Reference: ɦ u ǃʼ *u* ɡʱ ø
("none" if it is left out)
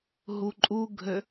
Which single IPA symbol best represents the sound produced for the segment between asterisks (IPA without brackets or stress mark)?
u